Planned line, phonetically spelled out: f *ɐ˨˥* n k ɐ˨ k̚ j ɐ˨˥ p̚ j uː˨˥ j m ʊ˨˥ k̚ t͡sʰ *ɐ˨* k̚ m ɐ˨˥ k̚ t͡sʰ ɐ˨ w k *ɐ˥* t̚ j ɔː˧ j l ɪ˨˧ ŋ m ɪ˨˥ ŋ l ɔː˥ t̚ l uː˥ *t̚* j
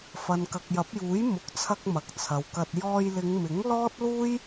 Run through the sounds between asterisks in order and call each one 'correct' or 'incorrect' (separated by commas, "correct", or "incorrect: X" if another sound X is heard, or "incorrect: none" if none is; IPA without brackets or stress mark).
incorrect: ɐ˨, incorrect: ɐ˧, incorrect: ɐ˧, incorrect: none